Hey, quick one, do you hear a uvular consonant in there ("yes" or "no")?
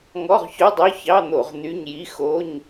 yes